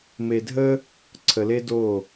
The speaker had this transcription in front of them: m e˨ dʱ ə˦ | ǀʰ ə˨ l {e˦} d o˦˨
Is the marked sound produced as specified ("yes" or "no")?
yes